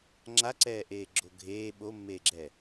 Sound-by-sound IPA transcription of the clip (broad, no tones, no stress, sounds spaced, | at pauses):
ŋ͡ǁ a ǀ ɛː ʔ eː ɡ͡ǁ o ɡʱ eː ɓ o mː eː ɡ͡ǁ ɛ